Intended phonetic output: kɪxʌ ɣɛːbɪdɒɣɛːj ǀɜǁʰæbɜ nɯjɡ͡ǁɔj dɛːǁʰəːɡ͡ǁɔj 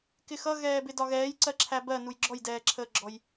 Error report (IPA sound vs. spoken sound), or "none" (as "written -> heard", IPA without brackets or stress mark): ɯ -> u